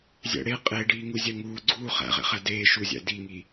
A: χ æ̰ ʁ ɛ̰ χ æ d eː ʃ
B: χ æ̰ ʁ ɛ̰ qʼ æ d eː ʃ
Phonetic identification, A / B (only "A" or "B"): A